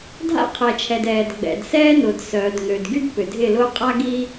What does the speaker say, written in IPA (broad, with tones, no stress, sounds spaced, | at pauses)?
dʱ a̰˦ qʰ ɛ˨ t͡ʃʰ ɛ˨ d ɛː˨ d ɡ͡b ɛ̰˨ d s ɛː˦ n ʊː˨ d s œː˨ d ŋ ø˨ d ɡ y˦ d p ʏ˨ dʱ ɪ˦˨ l ʊː˦ qʼ a˦ ɡ i˦